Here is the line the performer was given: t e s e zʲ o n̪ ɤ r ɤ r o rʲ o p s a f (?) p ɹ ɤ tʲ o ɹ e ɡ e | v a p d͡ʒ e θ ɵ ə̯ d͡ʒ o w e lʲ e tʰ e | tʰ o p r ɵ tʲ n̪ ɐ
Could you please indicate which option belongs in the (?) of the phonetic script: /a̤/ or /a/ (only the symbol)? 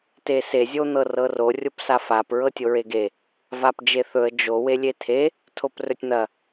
a